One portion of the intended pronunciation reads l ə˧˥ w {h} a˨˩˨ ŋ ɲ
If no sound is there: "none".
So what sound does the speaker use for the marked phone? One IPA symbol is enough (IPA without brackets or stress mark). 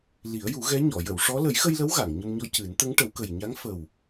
ɣ